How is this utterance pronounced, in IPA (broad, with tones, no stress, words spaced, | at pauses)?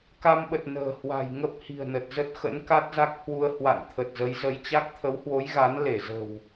ka˧mɓə˨˩t̚ nə̤ː˨˩hwa̤˨˩j ŋə˦˥p̚hi̤˨˩ə̯nə˨˩t̚ zə˦˥t̚xə̰˧˥nka˦˥t̚za˦˥k̚ hwu˧ə̯ hwa̰˧˨n t̪ʰə˨˩t̚zə˨˦j zə˨˦jt͡ɕa˦˥k̚ t̪ʰə˨˦whwo˨˦j ɣa˨˦n le˧˩zə̤˨˩w